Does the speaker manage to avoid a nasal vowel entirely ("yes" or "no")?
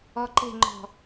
yes